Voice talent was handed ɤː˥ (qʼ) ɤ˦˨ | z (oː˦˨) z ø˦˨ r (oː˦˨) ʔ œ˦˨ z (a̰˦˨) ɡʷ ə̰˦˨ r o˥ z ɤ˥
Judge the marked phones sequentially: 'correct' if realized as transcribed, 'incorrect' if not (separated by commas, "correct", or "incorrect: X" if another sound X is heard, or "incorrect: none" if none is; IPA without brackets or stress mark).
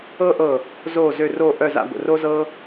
incorrect: ʔ, correct, correct, correct